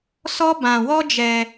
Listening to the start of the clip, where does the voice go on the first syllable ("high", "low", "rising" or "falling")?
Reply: high